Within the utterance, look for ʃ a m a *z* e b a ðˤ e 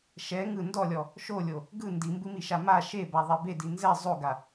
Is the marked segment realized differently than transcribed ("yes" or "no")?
yes